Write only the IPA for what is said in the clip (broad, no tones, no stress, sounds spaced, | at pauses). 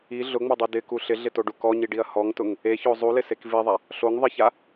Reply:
i ɮ ʊ ŋ͡m o dˤ i d ɪ k u ɬ ɪ ɮ ɪ t o ɖ u k ɔ ɲ i ɖ i ɐ̯ h ɔ ŋ t ʊ ŋ | e ç o zˤ u l ɪ s e k v i ðˤ a | ɬ o ŋ ðˤ ɪ ç a